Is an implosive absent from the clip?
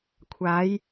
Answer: yes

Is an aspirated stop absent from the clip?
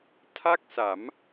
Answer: no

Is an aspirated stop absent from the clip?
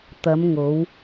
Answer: yes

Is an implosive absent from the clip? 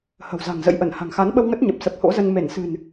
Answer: no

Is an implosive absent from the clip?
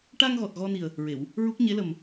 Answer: yes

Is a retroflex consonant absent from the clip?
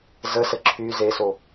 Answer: yes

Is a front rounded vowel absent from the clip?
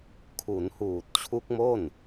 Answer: yes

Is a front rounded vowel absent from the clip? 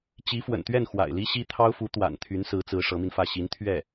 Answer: no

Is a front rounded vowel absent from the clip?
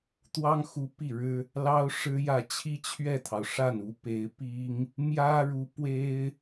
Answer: yes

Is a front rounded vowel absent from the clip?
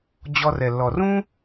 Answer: yes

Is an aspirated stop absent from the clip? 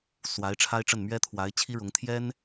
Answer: no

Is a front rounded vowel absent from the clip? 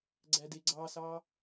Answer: yes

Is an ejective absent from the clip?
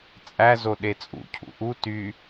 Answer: no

